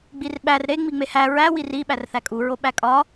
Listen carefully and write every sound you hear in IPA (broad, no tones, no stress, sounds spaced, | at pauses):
ɡ͡b i r ɓ æ r ɾ e ŋ͡m i ŋ͡m e h æ ɹ æ w i r i ɓ æ r θ æ kʼ u ɹ o ɓ æ kʼ ɒ